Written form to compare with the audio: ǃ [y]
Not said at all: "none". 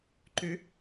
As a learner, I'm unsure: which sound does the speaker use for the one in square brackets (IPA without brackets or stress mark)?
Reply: y